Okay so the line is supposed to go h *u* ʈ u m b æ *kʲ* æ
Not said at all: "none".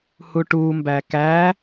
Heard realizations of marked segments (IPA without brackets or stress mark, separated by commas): u, k